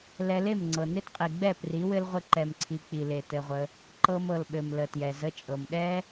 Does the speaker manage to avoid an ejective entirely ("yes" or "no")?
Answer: no